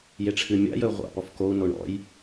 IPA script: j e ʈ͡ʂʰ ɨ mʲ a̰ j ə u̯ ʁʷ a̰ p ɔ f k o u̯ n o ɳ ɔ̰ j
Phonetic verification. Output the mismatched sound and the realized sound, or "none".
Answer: none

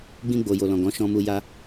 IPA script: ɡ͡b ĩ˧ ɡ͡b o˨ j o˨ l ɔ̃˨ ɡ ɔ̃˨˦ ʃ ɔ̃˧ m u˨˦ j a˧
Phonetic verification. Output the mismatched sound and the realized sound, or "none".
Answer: u˨˦ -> u˧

